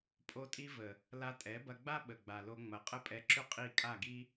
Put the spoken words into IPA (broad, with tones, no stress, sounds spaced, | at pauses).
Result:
pʼ o˧ tʼ i˧ v ə˨ | l a˧ tʼ ɛ˨˦ b ɐ˧ ɡ͡b a˦ ɓ ə˨ ɡ͡b a˨ l o˧ ŋ͡m ɐ˨˦ qʼ ə˦˨ pʼ ɛ˧ ǁ ʏ˦ qʼ i˦˨ kʼ a˦˨ ɡ i˦